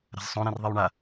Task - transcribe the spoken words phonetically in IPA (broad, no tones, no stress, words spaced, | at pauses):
ɾa̤zsˤõ ɾẽrðˤiwɳa